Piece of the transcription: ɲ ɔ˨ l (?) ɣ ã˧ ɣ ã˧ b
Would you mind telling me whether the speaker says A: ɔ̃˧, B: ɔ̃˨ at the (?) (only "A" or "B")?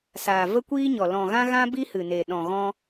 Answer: B